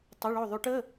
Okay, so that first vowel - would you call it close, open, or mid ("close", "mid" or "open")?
mid